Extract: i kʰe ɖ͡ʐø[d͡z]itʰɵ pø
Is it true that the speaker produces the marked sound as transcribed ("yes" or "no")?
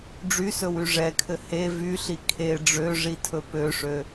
no